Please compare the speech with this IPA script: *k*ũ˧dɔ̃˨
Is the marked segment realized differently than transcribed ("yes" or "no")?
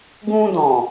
yes